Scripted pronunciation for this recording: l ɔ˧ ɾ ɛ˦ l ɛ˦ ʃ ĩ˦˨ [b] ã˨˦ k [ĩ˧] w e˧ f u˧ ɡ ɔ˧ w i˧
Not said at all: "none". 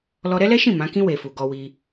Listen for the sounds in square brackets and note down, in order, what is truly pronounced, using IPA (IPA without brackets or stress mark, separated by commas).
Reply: m, ĩ˦